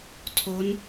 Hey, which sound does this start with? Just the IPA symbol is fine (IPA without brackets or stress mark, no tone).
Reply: tʰ